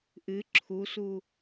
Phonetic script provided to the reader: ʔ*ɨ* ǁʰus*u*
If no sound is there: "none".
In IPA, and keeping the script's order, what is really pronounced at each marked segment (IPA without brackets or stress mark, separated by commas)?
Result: ɨ, u